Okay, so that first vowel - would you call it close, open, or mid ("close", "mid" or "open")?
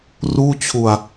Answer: close